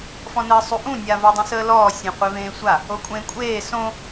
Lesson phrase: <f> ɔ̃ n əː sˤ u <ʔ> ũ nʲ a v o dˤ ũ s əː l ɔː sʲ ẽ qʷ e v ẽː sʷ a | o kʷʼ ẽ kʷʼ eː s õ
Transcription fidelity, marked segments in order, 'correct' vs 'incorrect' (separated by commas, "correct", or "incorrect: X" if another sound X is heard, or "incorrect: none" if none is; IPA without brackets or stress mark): correct, correct